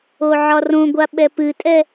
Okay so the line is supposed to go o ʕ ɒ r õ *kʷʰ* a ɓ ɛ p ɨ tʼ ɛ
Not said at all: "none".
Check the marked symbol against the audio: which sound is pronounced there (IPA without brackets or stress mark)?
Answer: ɡʷ